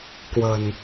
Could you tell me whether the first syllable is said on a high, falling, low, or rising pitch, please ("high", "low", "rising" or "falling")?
low